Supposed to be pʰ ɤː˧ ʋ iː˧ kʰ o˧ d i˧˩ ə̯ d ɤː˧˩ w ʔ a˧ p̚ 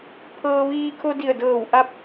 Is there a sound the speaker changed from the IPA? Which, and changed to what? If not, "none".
none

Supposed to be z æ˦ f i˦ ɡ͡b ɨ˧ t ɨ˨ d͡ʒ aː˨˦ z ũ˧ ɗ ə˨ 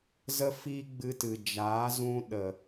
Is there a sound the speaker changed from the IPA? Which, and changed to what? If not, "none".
æ˦ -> ə˦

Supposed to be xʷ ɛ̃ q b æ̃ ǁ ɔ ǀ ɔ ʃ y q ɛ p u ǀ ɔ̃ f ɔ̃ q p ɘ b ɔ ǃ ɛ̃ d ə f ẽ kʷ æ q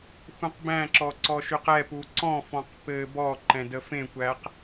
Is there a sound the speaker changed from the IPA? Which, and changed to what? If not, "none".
none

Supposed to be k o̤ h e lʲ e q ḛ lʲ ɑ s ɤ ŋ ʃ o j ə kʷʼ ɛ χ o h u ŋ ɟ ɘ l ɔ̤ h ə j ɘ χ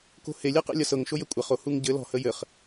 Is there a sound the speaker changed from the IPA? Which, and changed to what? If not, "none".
ɑ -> ɐ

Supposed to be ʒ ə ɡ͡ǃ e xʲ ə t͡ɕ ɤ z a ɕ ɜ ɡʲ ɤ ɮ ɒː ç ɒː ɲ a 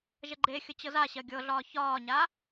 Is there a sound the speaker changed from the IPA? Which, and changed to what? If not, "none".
none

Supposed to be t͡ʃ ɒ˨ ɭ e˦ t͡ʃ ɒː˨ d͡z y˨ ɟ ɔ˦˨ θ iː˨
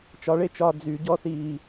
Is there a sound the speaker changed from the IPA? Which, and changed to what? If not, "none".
none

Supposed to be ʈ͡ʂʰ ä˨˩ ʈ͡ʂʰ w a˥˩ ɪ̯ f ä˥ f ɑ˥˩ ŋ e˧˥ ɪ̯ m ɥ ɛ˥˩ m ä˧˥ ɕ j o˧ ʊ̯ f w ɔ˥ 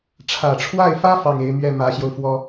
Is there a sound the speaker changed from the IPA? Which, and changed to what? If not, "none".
none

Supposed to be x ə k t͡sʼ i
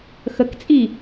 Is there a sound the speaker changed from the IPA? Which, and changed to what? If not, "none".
none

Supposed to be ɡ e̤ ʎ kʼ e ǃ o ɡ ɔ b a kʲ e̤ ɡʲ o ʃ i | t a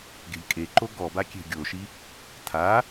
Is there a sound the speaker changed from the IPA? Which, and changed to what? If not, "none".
t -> tʰ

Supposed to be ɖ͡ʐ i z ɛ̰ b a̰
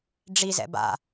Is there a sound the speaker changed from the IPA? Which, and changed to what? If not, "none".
none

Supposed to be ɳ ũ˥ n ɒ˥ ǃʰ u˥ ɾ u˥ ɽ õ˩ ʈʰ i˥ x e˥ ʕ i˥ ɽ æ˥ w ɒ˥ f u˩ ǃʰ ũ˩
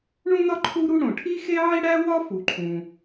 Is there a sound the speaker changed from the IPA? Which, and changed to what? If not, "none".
none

